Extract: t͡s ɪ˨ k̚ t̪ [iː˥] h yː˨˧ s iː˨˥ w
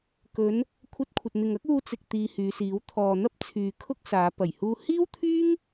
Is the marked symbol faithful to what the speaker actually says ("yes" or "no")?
no